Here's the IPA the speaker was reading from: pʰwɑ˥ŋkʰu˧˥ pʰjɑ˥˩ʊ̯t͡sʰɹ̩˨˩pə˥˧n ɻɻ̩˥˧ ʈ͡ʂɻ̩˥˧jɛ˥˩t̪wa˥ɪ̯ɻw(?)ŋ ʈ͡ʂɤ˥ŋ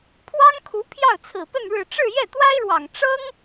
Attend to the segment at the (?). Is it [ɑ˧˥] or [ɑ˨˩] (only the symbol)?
ɑ˨˩